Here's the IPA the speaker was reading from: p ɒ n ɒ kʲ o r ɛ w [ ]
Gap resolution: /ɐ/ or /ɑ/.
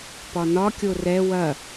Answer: ɐ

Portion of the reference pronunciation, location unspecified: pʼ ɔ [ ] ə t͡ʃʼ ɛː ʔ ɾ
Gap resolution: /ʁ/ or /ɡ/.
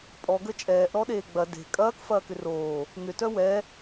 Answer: ɡ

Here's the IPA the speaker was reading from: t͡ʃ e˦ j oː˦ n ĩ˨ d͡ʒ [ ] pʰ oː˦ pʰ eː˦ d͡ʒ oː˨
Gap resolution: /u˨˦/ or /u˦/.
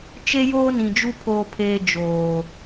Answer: u˦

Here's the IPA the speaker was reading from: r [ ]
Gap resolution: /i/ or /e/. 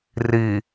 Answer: i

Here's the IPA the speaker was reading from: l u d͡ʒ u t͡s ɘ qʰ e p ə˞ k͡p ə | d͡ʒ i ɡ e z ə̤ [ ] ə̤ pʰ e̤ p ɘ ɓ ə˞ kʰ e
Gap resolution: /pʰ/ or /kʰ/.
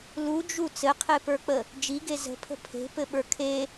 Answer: pʰ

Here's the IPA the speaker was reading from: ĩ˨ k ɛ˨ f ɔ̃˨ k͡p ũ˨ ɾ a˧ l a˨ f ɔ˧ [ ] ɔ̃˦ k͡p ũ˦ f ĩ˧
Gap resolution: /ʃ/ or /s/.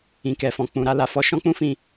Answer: ʃ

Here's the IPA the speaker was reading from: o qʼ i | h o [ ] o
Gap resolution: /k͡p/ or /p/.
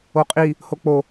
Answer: k͡p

